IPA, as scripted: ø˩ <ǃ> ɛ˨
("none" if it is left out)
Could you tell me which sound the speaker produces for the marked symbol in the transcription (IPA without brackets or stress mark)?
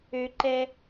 ǃ